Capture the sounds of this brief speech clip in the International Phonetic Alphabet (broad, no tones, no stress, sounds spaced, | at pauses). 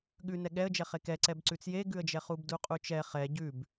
ɠ ʉ n ɛ ɠ ɛ ə̯ d͡ʒ ɛ χ e k ɛ ǀ ɛ b ǀ ʉ t͡s j e ɡ ʉ ə̯ d͡ʒ ɛ χ u b d u qʼ u t͡ʃ ɛ χ ɛ ɟ ʉ b